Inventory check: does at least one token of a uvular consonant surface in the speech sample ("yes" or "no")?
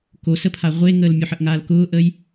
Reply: yes